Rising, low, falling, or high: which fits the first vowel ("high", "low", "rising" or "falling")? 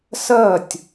falling